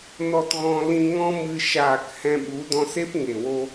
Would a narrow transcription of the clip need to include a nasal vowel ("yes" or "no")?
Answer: yes